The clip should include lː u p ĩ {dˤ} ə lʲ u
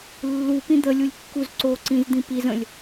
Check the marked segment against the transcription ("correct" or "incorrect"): incorrect